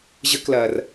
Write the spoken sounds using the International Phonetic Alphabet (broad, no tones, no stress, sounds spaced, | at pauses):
ʑ ə k l ɐː r